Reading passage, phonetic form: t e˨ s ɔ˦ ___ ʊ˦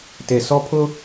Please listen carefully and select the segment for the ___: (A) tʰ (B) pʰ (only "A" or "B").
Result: B